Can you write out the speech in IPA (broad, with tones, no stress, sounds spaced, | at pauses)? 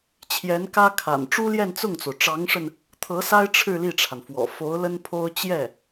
t͡ɕʰ j ɛ˧˥ n k ä˥ kʰ a̰˨˩ n ʈ͡ʂ u˥ l j ɛ˥˧ n t͡s ʊ˥˩ ŋ t͡s o˩ ʊ̯ ʈ͡ʂ ɑ˧˥ ŋ ʂ ə˧ n | t̪ʰ ɤ˧˥ s a˥ ɪ̯ ʈ͡ʂʰ ɻ̩˥˧ l i˥˩ ʈ͡ʂʰ a˩ n f w ɔ̰˨˩ f o˧˥ ʊ̯ l ə˥ n pʰ o˥ ʊ̯ t͡ɕ j ɛ˥˩